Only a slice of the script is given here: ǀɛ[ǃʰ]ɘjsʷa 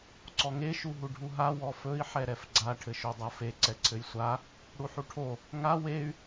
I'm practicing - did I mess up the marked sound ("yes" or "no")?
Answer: yes